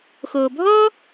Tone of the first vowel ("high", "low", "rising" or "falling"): low